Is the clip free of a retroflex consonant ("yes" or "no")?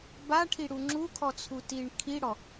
no